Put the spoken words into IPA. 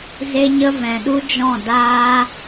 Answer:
z e˦ ɲ ə˦ v ɛ̃˨ ɗ u˦ d͡ʒ ɔ̃˦˨ d aː˦

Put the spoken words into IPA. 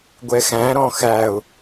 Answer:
ɡʷ ɛ x æ̃ ɾ ɔ̃ x æ ʊ̯

